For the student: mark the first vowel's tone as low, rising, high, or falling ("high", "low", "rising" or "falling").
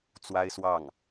high